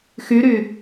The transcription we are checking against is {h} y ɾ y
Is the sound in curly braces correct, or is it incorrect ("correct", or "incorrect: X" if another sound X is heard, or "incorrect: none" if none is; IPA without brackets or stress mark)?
incorrect: x